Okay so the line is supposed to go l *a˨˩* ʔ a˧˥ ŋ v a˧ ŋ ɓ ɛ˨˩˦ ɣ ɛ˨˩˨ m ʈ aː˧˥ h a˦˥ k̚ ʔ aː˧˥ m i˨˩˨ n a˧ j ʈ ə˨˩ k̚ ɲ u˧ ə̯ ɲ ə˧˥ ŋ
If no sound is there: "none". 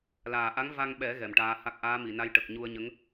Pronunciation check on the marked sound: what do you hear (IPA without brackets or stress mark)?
aː˨˩